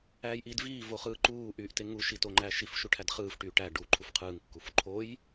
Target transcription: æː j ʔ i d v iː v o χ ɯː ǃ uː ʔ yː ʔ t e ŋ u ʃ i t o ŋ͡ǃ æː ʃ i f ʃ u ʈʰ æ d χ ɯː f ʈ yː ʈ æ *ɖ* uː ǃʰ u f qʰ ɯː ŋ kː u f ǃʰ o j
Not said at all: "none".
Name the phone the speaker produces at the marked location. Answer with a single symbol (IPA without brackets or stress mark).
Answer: ɖ